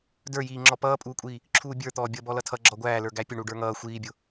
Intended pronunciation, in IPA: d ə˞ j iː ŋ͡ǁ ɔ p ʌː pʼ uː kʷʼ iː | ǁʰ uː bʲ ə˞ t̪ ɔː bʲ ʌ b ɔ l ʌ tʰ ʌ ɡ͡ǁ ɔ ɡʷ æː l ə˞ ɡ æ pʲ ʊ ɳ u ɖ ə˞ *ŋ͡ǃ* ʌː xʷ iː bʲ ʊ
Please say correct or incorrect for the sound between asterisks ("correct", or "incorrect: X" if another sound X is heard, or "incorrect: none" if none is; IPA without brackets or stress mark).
incorrect: ŋ